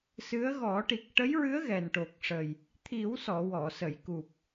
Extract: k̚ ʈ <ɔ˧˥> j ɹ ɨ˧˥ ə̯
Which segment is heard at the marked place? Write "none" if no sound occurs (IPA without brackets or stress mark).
ə˧˥